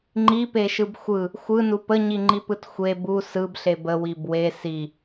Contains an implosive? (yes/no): no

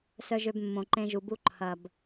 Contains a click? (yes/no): yes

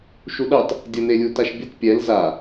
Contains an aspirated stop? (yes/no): no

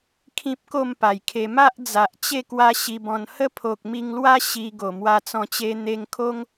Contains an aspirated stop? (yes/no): yes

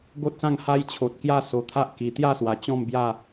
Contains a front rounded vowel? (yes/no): no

